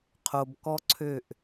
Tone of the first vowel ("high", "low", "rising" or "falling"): low